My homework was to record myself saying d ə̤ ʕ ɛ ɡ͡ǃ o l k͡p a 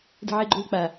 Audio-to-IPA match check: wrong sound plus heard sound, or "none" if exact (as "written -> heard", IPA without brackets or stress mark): none